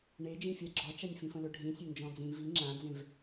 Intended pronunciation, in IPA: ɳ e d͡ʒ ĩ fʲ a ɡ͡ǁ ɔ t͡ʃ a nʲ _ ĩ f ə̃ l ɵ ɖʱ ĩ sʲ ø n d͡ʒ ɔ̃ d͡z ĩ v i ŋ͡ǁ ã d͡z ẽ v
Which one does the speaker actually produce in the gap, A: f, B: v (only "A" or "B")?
A